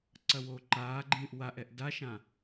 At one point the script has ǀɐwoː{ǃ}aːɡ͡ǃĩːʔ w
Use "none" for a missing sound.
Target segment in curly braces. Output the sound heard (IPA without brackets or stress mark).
ǃ